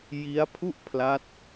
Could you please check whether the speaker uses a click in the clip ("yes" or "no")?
no